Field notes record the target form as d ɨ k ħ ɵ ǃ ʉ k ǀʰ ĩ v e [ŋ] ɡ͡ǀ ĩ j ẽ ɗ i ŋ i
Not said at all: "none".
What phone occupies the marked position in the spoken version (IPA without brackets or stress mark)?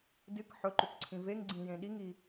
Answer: ŋ